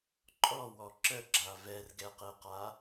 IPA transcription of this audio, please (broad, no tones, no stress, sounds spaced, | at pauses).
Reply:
ǃʼ ɔ w ɔ ǁ ə ɡ͡ǁ a v ɛ r ɡ ɛ q e q a